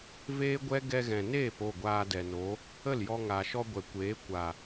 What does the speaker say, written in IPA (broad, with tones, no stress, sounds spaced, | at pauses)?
v eː˦ ɡʷ ɛ˦ ɡ ɛ˧ ɣ ɛ̃˨ n eː˦˨ p o˦˨ ɡʷ aː˧ d ɛ˨ n o˨˦ | ə˦˨ l j ɔ˧ ŋ a˨ ʃ ɔ˧ ɡʷ ɛ˨ kʷ eː˨˦ kʷ a˨